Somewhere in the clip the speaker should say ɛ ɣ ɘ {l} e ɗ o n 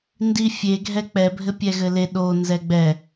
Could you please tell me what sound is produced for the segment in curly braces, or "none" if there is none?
l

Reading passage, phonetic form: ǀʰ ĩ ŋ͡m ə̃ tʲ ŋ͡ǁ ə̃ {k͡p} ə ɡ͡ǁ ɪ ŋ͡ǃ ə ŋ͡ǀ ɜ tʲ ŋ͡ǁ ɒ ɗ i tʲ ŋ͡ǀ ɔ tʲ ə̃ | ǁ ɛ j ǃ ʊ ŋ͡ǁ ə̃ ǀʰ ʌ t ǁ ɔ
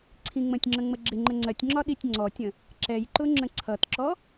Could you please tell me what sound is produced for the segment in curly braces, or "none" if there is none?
ŋ͡m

